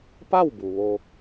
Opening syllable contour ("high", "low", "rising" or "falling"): falling